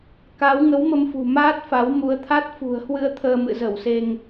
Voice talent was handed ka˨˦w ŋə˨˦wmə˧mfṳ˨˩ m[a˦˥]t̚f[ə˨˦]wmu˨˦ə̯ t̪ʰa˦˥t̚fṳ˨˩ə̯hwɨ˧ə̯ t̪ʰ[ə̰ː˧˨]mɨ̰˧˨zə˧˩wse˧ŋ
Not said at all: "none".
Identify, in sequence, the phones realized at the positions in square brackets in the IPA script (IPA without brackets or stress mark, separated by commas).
aː˦˥, a˨˦, əː˧